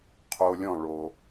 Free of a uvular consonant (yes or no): no